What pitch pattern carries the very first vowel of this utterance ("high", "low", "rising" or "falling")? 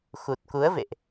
low